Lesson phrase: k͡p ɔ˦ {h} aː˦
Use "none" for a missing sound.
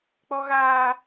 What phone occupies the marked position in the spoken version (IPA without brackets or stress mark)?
ɣ